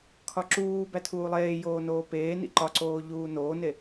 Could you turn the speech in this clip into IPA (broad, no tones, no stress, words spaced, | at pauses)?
kʰɒǁuːbæ tʰuːlˠeːjoː noːpeːnḭ ǃɒǀoː ʎuːnoːne